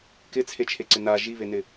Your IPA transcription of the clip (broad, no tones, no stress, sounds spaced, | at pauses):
k ɪ t͡sʰ e t͡ʃʰ e ǀ ɪ n a ʒ i β e n ɪ